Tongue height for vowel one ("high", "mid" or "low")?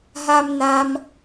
low